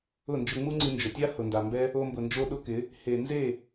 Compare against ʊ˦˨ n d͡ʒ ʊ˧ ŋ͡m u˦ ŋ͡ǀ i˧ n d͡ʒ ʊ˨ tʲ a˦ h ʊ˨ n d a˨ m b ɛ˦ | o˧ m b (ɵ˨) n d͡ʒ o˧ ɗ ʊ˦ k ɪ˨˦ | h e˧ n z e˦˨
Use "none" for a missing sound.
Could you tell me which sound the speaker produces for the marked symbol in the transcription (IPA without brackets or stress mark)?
ʊ˨